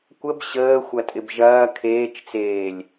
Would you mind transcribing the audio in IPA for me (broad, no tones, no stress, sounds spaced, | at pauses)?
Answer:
kʷ ə b ɕ əː xʷ ɐ tʼ ɪ b ʒ ɐː kʰ eː t͡ʃ t͡s eː lʲ